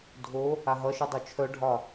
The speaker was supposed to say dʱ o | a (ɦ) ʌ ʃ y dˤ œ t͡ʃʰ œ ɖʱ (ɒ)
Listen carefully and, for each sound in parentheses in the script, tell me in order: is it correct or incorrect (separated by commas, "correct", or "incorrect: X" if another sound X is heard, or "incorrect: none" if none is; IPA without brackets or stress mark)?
correct, correct